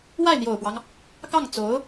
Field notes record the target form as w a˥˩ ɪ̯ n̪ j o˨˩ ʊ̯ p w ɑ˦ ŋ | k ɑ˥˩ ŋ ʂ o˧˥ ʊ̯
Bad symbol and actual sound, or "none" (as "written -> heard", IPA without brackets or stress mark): ʂ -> t͡s